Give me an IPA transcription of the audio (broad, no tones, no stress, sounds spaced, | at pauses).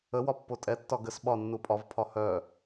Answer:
ə w ɒ pː o tʼ ɛ tː ɒ ɡ ə s ɓ ɒ nː u pʼ ɒ v pʰ ɒ h œ